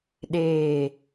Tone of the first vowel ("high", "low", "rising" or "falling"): low